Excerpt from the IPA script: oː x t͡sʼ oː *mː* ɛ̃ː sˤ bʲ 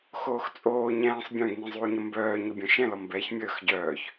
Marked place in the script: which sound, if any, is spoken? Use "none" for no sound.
ɲ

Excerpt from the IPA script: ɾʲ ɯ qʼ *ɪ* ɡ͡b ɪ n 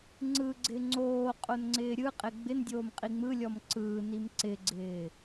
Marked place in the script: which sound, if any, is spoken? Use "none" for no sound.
ɪ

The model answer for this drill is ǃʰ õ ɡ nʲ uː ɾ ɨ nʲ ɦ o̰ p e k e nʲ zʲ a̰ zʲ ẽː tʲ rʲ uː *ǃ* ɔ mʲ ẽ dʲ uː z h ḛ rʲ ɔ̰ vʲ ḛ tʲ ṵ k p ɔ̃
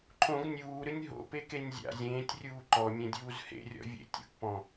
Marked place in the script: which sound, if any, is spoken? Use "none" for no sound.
ǃ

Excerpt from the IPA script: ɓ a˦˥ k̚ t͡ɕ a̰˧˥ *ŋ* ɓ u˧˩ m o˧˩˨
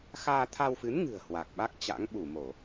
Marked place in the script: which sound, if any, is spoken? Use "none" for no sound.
ŋ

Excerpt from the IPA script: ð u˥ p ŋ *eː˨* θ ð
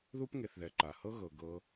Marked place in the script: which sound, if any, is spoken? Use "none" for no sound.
e˨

